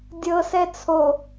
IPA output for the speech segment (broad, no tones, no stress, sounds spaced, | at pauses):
dʲ ɤ s ɛ t͡sʰ o